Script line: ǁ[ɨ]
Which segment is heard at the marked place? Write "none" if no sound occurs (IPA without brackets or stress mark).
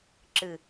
ɨ